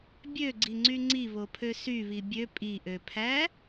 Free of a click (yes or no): no